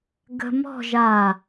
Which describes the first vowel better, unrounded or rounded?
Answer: unrounded